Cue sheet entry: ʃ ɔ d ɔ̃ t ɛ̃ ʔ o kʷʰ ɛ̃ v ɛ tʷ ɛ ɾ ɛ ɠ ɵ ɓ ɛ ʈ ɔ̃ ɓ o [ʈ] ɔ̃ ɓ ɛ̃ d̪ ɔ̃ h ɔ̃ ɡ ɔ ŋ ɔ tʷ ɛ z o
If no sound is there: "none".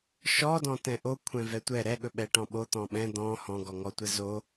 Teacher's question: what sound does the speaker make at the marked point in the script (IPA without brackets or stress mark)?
t̪